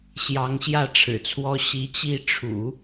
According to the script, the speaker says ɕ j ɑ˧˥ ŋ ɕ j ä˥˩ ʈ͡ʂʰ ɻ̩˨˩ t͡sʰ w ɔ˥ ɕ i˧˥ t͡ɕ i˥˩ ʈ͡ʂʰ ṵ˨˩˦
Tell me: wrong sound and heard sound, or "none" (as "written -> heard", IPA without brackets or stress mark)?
none